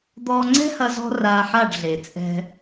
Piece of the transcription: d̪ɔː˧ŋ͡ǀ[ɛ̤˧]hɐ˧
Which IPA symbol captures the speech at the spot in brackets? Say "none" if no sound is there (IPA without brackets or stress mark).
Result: ɛ̤˦